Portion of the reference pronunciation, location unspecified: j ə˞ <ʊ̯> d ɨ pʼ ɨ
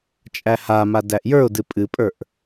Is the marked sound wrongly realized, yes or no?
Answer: no